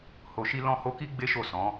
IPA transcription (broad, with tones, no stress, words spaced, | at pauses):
ho˨ʃi˧ lɔ̃˧ho˧ki˦ ɡ͡be˦ʃo˦˨ sɔ̃˨˦